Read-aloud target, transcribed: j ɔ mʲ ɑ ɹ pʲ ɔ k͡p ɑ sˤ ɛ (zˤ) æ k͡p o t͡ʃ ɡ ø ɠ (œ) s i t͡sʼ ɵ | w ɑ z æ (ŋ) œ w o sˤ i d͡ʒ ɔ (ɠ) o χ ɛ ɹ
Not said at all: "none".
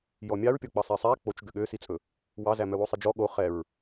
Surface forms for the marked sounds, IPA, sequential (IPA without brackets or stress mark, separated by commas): sˤ, ø, m, ɠ